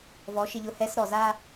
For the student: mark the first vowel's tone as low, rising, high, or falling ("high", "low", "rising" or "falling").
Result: rising